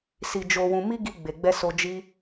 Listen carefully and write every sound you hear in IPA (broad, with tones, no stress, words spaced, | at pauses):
si˧d͡ʒo˧ wũ˧mi˦ ɡi˧ɡ͡be˨ɡ͡bɛ˧so˧ d͡ʒi˦